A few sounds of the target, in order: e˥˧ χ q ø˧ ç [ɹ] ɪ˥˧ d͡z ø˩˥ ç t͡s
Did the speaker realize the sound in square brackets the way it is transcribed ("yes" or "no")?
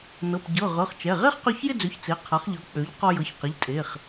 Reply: no